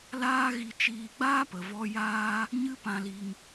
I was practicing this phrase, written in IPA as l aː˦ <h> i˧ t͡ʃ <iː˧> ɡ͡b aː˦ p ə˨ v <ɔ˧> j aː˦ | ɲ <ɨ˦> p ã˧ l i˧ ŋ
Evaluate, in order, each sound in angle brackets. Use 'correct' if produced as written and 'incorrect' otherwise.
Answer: incorrect, correct, correct, correct

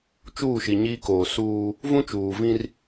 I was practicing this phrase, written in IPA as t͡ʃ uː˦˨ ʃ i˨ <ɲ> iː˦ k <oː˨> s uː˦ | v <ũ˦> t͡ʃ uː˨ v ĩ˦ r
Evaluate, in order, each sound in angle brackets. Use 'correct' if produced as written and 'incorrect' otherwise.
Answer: correct, correct, correct

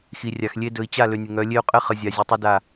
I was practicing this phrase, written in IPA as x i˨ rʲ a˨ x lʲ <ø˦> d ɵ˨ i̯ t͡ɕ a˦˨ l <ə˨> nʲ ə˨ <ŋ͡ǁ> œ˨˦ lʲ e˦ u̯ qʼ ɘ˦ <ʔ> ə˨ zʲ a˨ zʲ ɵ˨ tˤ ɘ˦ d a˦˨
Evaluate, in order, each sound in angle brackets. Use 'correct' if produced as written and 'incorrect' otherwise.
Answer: incorrect, incorrect, incorrect, incorrect

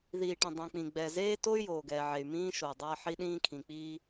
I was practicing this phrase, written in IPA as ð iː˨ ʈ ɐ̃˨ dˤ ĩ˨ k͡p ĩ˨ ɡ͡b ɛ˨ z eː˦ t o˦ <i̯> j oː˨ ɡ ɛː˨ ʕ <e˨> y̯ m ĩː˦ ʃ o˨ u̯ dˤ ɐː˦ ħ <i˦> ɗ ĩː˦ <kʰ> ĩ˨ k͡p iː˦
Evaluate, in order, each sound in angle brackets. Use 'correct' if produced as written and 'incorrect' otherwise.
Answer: incorrect, correct, correct, correct

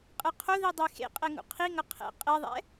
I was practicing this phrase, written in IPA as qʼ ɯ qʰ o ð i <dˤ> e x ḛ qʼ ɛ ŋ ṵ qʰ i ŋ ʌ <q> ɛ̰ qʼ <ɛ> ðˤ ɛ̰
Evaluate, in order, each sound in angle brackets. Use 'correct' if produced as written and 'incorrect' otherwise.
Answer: correct, incorrect, correct

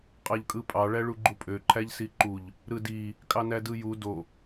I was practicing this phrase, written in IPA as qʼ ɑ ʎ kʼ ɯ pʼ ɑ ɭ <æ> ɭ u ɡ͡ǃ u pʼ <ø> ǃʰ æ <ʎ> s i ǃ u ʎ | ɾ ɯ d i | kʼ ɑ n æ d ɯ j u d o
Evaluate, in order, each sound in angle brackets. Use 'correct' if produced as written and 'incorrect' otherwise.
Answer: correct, correct, correct

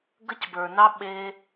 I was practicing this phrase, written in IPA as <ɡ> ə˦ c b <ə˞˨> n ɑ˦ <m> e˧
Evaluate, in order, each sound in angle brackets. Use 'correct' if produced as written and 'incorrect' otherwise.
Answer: correct, correct, incorrect

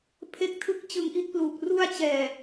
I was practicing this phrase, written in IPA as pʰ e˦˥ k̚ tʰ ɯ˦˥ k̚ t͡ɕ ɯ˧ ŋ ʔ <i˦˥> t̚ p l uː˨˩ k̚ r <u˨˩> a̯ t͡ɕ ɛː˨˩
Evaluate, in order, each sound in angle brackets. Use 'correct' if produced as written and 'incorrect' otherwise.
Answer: correct, incorrect

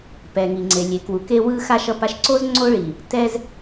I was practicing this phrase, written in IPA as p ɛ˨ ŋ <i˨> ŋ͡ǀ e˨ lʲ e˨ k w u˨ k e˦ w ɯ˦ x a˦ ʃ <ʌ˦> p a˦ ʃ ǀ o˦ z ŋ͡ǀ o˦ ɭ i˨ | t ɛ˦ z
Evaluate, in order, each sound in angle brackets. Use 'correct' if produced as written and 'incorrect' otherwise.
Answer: correct, correct

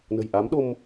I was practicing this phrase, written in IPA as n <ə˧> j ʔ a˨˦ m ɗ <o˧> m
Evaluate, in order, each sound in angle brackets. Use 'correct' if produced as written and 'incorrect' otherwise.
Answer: incorrect, correct

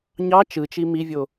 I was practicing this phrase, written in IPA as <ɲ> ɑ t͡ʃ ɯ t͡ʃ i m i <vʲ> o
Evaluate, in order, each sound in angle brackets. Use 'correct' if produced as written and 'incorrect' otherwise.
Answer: correct, correct

